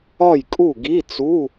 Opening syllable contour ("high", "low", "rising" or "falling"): falling